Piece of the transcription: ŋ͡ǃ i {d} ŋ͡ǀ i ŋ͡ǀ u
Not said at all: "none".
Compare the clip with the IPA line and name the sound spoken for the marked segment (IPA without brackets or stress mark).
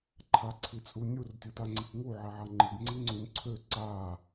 ɡ